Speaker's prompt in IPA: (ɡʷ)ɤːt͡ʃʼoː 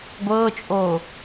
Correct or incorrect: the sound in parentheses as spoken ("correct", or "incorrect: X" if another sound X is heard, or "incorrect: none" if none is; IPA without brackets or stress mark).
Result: correct